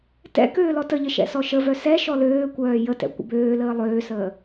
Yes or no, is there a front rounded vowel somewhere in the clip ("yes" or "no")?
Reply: yes